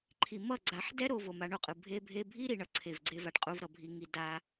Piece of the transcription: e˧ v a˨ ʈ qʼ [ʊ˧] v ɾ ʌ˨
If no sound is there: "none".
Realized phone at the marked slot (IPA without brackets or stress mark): u˧